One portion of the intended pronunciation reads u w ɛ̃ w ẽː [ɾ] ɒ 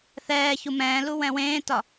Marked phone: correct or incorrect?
incorrect